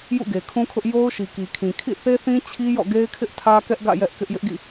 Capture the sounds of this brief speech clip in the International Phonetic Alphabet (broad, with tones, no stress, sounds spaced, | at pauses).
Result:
j ṵ˦˨ ɡ e˨ kʰ ũ˦ kʰ ʊ˦ ʔ j o˦ ʊ̯ ʃ i˨ k i˨ kʰ ĩ˨ kʰ ḭ˦˨ θ e˦ θ ĩ˦ t͡ɕʰ i˦ j ɔ̰˦˨ ɡ e˦ ɪ̯ kʰ ɪ˦ ʔ tʰ ä˦ k ɛ˦ ʔ ɡ ä̰˦˨ j ɛ˦ ʔ k ɪ˦ ʔ j ɪ˦ ʔ ɡ ḭ˦˨